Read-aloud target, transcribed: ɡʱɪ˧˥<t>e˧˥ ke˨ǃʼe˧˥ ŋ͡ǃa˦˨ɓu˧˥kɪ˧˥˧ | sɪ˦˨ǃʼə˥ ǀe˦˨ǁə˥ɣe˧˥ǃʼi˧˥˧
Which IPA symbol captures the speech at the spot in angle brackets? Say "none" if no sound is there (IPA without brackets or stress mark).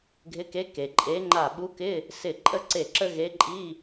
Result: k